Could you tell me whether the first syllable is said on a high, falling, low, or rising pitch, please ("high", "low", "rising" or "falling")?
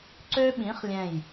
high